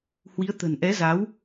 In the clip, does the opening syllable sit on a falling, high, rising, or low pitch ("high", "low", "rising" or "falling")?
rising